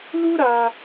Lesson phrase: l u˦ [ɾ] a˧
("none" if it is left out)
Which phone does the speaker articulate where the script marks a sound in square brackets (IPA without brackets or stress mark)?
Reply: ɾ